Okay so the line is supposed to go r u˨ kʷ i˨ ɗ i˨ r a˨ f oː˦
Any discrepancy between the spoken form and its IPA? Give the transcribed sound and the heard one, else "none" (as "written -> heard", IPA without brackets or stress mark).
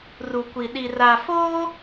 none